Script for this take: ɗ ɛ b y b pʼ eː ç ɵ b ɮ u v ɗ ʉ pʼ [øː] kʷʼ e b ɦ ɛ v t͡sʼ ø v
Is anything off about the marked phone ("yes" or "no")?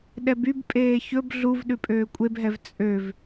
no